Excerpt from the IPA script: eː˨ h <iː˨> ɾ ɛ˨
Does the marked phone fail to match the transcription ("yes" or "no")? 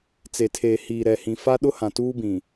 no